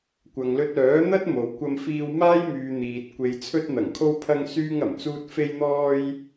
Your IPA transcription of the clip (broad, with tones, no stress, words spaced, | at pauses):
kʷɐ˨ŋlɵ˧t̚œː˨˥ n̪ɐ˥t̚mo˨˧wkʷɐ˧mfiː˧w maː˥jmyː˨ n̪iː˨t̚ kʷe˨jt͡sʰɵ˧t̚ n̪ɐ˨˩ŋkʰo˧wpʰɐ˧ŋ syː˧ŋɐ˨˩mt͡suː˧t̚ fe˧jn̪ɔː˧j